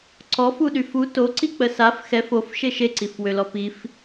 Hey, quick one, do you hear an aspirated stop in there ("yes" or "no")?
no